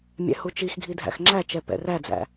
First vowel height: mid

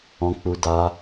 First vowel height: mid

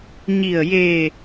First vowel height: high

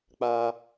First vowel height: low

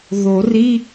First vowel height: mid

